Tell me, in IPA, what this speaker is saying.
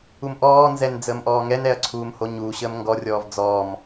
u m ʔ ɔː n z ɛ n d͡z əː m ʔ ɔː ŋ ɛ n ɛ ɐ̯ ǀʰ uː m h o ɲ uː ɕ əː m ŋ ɡ ɔ rʲ ɔː v d͡z ɔː m

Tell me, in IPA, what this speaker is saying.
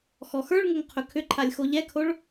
x ɔ x ə˞ ɭ ŋ o ŋ qʰ ɵ kʰ ʏ ǃʰ a lʲ x o ʎ ɛ kʰ o ɭ

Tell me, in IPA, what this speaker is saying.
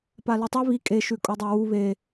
p a l ʉ tˤ ʉ β i kʼ e ʃ ʉ kʼ o dˤ a w u β e

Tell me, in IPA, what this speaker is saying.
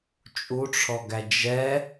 t͡ʃʼ u ʈ͡ʂʰ ɔ ɡ æ d͡ʒ ɛ

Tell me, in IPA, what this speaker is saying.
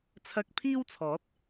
t͡sʰ ɐ˧ k̚ pʰ iː˥ w t͡sʰ ɔː˨˥ t̚

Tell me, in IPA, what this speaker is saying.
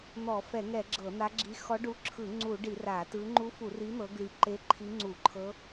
n̪ ɔ˧˩˧ f ɛ˧˩˧ ŋ ɛ˧˩˧ ɡ͡ǁ ɤ˧˩˧ n̪ a˧˥ ɡ͡ǁ i˧˥ x ɔ˧˥ ɖ u˧˥ ǁʰ ɯ˧˩˧ ŋ͡ǀ u˧˩˧ ɖ i˧˩˧ r a˧˩˧ t ɯ˧˥ ŋ͡ǃ u˧˥ f u˧˩˧ r i˧˥ n̪ ɤ˧˥ ɡ l i˧˥ ǃ e˧˥ ǃʰ i˧˥ ŋ͡ǀ u˧˩˧ ǃʰ ɤ˧˥

